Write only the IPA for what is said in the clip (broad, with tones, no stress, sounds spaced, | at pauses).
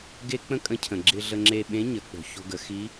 ɡ e˥ k͡p ə̃˥ kʼ ə̃˧˥ cʰ ə̃˩ ɡ͡ǁ ɪ˧ ɮ ə˧ ŋ͡ǁ e˧ ɓ ẽ˧˥ ɲ ə˩˧ k͡p o̤˩ ç o̤˧ ɡ ə˩˧ x i˧˥